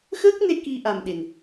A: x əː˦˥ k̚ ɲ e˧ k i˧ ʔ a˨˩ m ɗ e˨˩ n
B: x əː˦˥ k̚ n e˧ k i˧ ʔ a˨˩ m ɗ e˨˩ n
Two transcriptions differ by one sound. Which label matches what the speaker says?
B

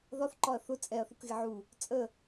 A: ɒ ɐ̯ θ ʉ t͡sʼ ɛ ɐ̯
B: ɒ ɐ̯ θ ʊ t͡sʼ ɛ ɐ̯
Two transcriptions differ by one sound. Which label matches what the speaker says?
B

